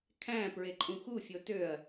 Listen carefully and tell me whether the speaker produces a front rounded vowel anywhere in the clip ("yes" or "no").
yes